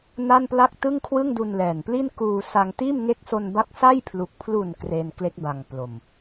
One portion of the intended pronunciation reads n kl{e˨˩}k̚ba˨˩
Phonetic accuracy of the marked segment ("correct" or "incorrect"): incorrect